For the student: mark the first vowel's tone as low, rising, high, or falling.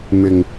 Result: low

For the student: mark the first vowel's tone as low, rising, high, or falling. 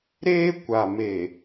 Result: high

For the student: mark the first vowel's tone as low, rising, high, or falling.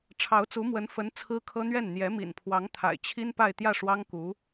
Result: rising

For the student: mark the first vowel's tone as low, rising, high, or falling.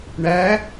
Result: rising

